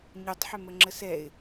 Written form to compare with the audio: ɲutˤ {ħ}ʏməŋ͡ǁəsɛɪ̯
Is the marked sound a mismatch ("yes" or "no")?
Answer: no